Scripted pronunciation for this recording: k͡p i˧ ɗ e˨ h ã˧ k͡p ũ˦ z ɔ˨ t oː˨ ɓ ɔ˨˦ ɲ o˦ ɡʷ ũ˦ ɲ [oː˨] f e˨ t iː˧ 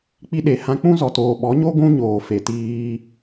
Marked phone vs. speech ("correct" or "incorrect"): correct